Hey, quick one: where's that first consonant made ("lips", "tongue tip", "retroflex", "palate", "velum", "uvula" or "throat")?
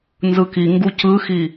tongue tip